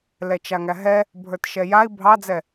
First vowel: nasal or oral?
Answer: oral